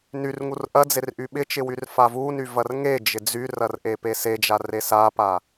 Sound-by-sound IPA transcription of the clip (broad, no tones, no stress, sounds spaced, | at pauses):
n y r ŋ u r ʔ ɐ d͡z e r ʔ y ɓ ɪ t͡ʃ ɪ w y r f a v u n y v ɐ r ŋ e d͡ʒ ɪ d͡z y r ɐ r ʔ e p e s e d͡ʒ a r e s a p a